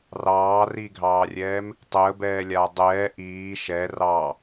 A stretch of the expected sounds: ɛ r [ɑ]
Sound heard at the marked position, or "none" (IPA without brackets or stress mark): ɑ